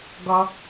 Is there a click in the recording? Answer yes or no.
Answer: no